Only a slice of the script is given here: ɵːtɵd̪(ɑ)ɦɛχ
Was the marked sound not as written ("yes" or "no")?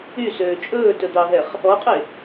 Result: no